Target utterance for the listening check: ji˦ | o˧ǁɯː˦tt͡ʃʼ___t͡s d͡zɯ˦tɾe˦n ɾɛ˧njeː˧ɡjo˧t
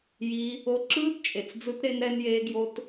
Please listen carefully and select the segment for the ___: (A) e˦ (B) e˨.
B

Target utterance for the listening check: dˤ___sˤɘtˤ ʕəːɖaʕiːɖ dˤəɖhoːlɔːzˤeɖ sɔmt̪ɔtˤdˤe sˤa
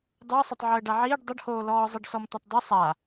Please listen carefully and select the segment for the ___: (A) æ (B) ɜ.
B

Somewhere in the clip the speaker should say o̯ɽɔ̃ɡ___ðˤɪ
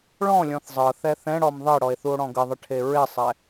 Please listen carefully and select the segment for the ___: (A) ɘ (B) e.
A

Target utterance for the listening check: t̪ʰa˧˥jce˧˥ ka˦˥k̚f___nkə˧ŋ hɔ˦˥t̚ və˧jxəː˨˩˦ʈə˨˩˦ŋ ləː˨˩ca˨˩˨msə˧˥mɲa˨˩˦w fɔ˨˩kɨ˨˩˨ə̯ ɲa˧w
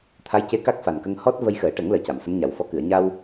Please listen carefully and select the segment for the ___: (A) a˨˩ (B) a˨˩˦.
A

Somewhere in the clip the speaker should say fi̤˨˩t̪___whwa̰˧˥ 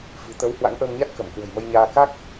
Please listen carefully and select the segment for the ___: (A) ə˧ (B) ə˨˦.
B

